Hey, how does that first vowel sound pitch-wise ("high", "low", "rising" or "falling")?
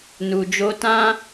low